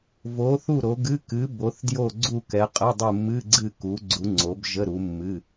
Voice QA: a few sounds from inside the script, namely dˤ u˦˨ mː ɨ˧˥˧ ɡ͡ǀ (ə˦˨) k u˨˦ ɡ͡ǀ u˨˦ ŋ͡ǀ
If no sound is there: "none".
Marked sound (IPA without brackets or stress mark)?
ɨ˦˨